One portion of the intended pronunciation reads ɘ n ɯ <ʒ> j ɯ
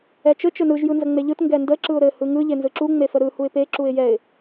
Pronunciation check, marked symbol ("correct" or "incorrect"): correct